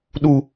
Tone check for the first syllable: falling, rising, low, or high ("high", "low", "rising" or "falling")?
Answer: high